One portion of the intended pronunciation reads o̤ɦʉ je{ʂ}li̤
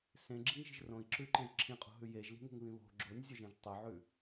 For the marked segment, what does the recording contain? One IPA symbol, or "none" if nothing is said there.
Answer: ʒ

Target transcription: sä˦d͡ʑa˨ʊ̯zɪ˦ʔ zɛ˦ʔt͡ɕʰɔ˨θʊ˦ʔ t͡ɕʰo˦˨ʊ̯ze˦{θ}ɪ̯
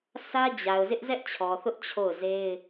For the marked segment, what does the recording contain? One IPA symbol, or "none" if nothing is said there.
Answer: none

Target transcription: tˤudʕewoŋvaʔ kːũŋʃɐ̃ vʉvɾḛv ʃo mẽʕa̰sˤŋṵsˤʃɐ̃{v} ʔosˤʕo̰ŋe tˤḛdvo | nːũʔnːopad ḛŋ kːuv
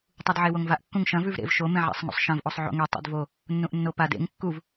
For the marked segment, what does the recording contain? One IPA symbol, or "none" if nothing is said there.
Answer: v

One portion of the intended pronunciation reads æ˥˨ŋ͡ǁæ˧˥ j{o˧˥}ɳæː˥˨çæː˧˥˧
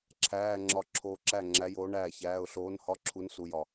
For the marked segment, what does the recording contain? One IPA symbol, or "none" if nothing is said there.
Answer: oː˧˥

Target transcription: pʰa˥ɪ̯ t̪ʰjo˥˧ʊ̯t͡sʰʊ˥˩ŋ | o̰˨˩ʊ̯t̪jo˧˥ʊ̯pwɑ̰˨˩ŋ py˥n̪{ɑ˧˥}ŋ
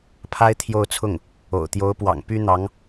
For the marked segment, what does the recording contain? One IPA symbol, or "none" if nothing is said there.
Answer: ɑ˧˥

